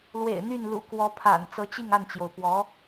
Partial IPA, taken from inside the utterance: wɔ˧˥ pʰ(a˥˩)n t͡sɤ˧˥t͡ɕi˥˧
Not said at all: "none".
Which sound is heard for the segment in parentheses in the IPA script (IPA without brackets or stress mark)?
a̰˨˩